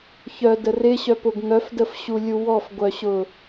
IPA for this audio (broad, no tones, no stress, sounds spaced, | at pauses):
ç œ d ə r ɪ ɕ œ p ʊ ɡ ŋ œ f d ə f ɕ u lʲ u w ɔ f ɡʷ œ ɕ ʊ